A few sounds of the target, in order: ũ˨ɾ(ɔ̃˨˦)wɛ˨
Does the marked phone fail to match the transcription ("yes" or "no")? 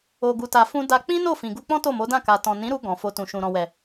yes